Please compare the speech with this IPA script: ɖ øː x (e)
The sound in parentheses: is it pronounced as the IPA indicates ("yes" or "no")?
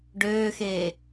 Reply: no